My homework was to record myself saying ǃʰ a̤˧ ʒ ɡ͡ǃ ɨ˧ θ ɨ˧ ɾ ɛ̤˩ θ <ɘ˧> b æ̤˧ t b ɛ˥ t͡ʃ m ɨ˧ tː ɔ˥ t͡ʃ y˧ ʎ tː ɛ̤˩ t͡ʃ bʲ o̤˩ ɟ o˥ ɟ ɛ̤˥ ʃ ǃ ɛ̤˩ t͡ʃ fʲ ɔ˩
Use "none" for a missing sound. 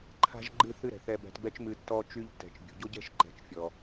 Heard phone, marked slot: ɛ˧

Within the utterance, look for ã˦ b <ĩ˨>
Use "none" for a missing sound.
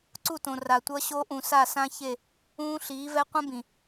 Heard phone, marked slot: ĩ˨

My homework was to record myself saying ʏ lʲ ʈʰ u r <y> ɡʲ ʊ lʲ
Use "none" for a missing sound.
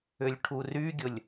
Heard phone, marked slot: y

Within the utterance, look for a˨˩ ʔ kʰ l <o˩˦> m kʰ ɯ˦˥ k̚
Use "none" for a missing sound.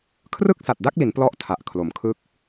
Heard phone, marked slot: o˩˦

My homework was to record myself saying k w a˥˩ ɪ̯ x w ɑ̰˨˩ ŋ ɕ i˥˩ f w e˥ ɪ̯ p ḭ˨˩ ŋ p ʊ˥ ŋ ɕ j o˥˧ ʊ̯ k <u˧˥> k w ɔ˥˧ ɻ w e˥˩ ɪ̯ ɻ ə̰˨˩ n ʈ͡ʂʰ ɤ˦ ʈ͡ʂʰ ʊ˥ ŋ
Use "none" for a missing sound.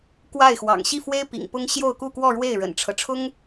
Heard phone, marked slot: u˥˧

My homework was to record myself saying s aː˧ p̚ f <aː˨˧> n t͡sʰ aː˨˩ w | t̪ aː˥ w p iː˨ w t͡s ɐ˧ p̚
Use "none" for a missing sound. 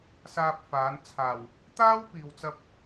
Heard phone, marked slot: aː˨˧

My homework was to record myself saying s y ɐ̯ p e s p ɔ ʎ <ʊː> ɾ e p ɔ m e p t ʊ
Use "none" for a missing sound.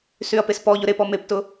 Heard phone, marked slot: ʊ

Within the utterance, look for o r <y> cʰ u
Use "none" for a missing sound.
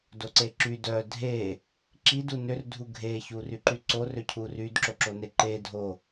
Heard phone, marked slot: ø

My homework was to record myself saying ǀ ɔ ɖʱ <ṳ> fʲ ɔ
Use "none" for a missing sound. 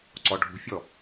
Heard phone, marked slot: ṳ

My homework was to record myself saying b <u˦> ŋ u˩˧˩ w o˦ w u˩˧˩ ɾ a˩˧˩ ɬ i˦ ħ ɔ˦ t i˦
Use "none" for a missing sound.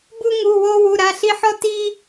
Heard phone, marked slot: u˦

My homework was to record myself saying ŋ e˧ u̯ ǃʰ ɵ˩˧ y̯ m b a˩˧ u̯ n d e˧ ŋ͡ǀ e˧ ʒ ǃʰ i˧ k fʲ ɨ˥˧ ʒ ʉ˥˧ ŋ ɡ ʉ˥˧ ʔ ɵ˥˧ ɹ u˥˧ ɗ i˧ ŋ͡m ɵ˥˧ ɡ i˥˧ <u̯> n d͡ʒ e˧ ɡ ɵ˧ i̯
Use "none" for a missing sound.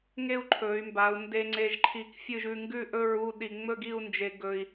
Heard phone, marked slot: u̯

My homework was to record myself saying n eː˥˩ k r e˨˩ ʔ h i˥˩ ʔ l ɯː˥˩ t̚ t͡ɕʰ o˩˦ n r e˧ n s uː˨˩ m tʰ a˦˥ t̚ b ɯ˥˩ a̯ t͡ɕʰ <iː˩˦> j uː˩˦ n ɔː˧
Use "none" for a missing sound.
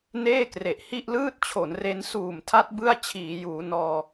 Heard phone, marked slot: iː˩˦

